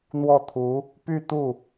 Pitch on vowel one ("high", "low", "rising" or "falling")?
falling